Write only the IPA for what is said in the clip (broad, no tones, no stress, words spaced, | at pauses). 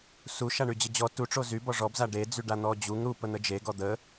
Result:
su ʃaɳyd͡ʑəd͡ʑɔ tuʈ͡ʂo zy bɔʐɔbza ɖe d͡zyɖan̪ɔd͡ʑuŋ ɾupə n̪əd͡ʒe ɡɔd̪ə